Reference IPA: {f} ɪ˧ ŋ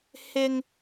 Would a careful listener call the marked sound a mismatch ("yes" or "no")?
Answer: yes